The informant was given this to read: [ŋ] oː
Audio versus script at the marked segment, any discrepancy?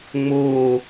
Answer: yes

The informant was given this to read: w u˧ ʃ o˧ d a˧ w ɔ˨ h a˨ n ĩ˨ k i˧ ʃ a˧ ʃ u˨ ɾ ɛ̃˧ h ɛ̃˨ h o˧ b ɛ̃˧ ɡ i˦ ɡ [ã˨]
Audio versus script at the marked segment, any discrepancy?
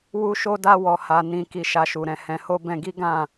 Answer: yes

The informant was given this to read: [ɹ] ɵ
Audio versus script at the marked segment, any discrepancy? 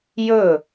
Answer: yes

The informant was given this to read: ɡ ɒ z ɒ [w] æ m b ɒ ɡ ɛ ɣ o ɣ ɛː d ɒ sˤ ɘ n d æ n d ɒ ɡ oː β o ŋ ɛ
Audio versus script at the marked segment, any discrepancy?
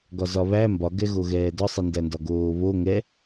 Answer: yes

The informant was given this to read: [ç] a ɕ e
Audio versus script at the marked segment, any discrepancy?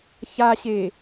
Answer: no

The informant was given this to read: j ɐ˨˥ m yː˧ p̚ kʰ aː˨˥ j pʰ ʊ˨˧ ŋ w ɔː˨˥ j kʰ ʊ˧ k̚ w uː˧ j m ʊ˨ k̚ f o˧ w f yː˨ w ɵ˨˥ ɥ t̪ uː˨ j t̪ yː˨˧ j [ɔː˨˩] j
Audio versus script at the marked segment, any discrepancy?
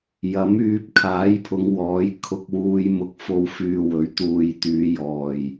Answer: no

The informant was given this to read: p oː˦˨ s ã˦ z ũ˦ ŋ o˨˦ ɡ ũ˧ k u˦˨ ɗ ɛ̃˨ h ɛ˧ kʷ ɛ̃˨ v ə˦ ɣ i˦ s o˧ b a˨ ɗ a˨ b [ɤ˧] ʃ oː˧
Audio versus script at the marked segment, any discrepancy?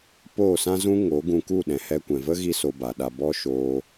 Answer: yes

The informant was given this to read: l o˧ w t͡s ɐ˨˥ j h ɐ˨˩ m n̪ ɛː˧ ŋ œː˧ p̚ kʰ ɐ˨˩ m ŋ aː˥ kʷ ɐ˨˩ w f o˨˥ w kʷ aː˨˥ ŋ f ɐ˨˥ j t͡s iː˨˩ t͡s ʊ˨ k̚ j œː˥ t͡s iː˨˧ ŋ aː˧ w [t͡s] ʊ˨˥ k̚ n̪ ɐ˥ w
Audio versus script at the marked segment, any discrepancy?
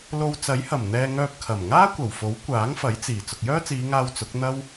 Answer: no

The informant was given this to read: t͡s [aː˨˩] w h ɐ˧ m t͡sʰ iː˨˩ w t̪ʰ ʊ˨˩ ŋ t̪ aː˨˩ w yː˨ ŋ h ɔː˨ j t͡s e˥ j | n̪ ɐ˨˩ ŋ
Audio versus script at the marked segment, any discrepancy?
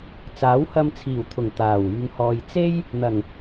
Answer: yes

